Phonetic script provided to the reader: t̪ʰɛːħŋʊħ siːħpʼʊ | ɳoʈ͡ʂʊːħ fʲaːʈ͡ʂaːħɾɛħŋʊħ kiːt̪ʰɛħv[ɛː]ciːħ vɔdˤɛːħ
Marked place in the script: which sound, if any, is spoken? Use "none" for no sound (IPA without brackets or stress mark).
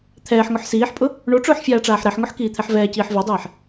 ɛː